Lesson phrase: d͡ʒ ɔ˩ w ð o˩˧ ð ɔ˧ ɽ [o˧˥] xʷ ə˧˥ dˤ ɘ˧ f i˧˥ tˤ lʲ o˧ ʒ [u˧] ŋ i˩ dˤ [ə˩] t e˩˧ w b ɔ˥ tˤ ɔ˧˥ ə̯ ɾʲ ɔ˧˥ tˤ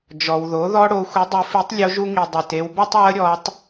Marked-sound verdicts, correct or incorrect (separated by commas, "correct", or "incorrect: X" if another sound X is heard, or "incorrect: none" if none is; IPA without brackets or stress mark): incorrect: o˧, correct, correct